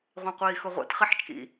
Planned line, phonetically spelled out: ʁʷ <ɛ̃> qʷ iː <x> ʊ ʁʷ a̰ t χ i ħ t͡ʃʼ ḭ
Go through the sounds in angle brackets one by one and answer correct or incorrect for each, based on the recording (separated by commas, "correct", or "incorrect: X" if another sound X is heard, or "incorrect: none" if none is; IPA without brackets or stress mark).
correct, correct